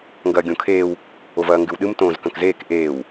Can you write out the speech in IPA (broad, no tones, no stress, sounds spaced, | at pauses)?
ŋ ɡ ɐː ɡʲ õ kʰ eː w | o v ɐː ŋ ɡ ʉ w ɗ ɨ m t õː z k ɐ̃ k z eː k ʔ eː w